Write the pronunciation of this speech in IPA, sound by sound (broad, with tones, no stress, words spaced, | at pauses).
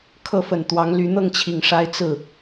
kʰɤ˥˩fə˨˩nt̪wɑ˧˥ŋ ly˧˥ n̪ɤ˥˩ŋt͡ɕʰi˨˩ŋ ʂa˥ɪ̯ t͡sɹ̩˥˩